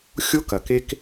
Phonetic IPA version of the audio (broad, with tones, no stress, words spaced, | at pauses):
xʲo˦kɐ˨k e˦k